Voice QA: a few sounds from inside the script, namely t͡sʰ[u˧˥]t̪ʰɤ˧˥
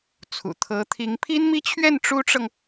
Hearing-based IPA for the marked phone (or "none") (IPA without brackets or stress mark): ṵ˨˩